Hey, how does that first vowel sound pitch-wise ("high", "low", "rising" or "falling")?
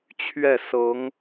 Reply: falling